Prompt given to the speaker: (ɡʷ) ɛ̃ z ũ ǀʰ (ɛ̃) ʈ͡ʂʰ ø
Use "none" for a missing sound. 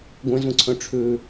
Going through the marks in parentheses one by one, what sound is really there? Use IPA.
ɡʷ, œ̃

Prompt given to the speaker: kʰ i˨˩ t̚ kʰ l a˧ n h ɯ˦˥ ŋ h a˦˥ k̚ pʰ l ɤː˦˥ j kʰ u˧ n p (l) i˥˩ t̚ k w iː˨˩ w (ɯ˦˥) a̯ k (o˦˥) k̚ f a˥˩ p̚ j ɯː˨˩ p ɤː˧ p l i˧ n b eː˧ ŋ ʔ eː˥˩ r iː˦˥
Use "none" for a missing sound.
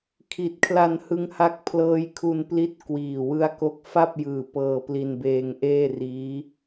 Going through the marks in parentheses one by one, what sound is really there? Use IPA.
l, ɯ˦˥, o˦˥

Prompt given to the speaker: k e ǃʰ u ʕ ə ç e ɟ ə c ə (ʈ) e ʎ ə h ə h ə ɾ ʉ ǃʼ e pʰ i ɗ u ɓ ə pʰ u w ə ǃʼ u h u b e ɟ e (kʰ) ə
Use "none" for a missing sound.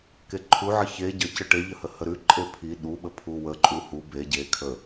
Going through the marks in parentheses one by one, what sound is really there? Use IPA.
ʈ, kʰ

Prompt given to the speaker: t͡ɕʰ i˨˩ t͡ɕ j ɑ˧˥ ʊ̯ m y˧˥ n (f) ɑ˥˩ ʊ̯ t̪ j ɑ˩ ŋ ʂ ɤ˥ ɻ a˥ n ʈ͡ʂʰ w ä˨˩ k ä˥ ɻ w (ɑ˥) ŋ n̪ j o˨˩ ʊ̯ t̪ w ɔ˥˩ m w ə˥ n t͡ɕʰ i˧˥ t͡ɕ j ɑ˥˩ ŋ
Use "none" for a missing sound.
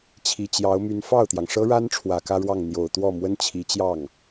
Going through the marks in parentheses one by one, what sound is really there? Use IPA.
f, ɑ˥˩

